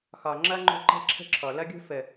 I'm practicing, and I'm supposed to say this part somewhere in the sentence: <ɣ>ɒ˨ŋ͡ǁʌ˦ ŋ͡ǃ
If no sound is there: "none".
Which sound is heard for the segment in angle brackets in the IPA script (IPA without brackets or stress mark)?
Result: x